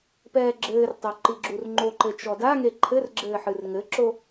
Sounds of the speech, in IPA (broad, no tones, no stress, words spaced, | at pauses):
pɛːɡ͡ǁɘːrtˤo ǃiɡ͡ǁurŋ͡ǃoǃɘ t͡ʃɔdaŋe ǃʰɘrɡ͡ǁɘː ħɨrŋɘǁo